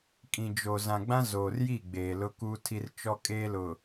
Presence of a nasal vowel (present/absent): present